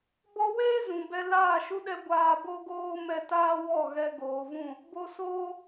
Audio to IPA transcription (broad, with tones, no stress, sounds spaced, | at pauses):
b ɔ˧ w eː˦ z ũ˨ b ɛ˧ l aː˦˨ ʃ u˦ ɗ ɛ˦ ɡʷ aː˧ b o˦ ɡ oː˦ m ɛ˧ t aː˦ w ɔ˦˨ ɣ ɛ˧ ɡ oː˨ v ũ˦˨ | b o˧ s oː˦